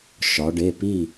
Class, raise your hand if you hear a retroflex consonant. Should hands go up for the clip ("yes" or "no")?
yes